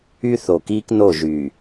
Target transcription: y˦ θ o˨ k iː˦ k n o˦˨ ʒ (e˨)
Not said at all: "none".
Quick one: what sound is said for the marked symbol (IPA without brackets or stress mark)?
y˨